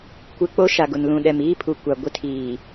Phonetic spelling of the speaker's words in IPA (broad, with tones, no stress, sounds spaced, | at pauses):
kʷ ɪ˦ k͡p o˦ ʃ a˨ ɡ ʊ˨ n l ũ˨ ɗ ɛ˨ m iː˦ pʰ u˨ kʷ a˨ ɡʷ ɪ˦ tʰ iː˨